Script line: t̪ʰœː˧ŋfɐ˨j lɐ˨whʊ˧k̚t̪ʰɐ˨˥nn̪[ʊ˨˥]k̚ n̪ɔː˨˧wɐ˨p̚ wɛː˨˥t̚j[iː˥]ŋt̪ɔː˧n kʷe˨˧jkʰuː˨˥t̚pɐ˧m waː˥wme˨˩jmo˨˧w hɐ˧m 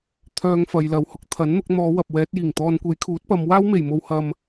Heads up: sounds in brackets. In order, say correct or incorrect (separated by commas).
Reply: correct, incorrect